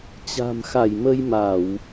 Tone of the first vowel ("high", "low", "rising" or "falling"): low